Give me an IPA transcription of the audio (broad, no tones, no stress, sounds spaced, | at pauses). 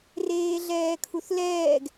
r eː ɮ ɛː kʰ u θ l ɛː ɡ